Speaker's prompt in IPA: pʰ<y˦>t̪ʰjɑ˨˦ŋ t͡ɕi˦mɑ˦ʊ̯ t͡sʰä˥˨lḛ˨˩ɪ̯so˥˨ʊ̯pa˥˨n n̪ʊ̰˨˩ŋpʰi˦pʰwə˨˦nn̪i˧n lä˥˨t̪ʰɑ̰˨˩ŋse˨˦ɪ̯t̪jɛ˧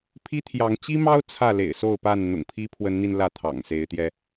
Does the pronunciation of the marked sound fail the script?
yes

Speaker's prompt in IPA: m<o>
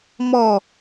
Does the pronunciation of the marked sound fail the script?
yes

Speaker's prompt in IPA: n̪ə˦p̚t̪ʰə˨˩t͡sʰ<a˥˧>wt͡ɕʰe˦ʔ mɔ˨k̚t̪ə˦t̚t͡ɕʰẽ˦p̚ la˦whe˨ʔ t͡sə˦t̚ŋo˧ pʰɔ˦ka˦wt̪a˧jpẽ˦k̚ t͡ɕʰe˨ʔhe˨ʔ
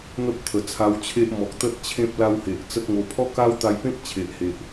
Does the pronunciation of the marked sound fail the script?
yes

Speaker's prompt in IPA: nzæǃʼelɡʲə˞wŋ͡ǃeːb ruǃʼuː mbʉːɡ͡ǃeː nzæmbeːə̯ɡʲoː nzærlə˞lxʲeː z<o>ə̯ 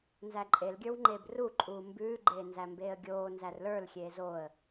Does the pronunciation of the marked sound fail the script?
no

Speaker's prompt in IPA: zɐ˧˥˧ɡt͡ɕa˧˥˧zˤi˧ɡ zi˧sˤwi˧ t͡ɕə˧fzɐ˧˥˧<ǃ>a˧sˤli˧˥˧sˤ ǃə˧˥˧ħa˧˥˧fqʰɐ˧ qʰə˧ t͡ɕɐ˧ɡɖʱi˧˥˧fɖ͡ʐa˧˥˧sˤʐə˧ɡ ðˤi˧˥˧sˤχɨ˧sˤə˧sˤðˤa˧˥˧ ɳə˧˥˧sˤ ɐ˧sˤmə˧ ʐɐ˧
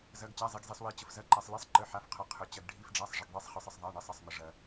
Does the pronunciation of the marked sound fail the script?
no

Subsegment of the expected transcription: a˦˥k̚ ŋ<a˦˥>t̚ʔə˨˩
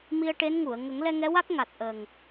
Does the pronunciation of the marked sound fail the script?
yes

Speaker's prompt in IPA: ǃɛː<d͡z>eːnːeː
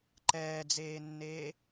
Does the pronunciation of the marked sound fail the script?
no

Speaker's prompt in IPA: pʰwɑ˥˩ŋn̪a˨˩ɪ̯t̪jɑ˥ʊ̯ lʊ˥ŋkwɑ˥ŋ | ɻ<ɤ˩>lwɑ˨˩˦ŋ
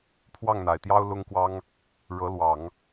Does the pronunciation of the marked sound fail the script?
yes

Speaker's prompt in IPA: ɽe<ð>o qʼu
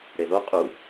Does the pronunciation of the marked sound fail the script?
no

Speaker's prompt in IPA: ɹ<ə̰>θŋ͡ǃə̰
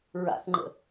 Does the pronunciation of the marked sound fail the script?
yes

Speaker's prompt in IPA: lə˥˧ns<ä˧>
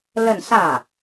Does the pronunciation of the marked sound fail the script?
yes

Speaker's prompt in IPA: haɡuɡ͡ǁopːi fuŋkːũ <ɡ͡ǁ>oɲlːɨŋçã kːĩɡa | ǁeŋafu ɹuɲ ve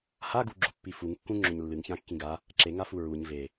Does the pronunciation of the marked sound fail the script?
yes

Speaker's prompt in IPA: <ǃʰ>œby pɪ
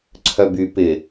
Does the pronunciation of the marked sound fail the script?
yes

